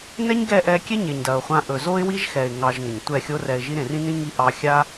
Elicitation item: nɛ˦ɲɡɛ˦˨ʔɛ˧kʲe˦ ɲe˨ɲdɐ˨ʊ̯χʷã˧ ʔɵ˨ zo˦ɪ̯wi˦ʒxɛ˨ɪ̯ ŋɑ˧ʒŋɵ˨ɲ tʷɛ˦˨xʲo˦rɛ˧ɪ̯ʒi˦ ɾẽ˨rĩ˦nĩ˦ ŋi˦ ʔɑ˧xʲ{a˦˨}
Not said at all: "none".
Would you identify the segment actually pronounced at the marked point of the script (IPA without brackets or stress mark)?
a˦